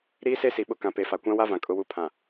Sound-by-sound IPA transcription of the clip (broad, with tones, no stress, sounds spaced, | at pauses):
ɾ iː˦ s e˦ s i˨ ɓ ʊ˦ k ã˨ p e˨ f a˨ kʷ ã˦ w a˦ v ã˨ kʼ ʊ˨ w u˨ pʰ ã˨